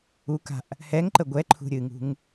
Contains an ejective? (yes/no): no